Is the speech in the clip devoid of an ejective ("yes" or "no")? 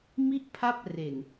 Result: yes